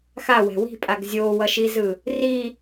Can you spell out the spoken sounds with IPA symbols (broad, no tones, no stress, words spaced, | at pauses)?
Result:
xawɛ̤ wi̤pʼaɡ zʲowʌʃizɯ | ri